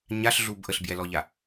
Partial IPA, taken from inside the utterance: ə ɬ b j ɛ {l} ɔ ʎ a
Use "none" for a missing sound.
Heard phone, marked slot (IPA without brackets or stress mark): l